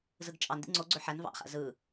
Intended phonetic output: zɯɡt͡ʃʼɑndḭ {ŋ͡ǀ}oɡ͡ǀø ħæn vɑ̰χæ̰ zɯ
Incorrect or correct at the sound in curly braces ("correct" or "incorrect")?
correct